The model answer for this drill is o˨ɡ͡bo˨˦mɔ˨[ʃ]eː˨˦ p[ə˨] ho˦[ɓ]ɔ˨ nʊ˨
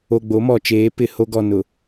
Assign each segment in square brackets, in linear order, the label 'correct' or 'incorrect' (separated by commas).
incorrect, incorrect, incorrect